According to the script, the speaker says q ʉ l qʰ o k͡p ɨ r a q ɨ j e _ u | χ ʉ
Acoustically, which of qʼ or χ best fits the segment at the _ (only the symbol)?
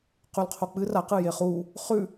χ